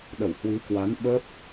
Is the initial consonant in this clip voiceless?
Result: no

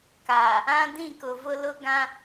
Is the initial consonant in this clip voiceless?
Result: yes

